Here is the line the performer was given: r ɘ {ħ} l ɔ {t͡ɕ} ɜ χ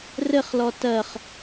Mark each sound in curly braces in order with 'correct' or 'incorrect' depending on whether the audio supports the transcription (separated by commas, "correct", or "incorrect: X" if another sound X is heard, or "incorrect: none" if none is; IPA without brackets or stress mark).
incorrect: χ, incorrect: t